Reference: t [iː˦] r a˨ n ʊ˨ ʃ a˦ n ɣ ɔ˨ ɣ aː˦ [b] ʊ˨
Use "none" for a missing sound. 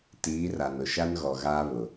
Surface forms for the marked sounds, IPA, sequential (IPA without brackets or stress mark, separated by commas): iː˨˦, β